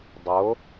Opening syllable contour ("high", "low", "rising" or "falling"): rising